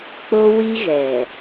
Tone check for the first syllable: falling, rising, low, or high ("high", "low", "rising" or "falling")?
high